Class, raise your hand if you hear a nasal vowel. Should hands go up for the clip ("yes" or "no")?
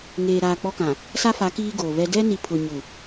yes